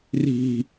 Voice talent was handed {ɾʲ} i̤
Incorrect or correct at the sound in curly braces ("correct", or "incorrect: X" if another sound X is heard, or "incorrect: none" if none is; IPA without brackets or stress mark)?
incorrect: r